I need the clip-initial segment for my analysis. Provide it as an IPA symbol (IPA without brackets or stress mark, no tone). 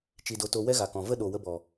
t͡ʃ